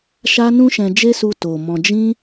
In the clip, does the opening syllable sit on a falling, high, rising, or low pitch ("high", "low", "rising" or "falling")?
high